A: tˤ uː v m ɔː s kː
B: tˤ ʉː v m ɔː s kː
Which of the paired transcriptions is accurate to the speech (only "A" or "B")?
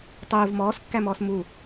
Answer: A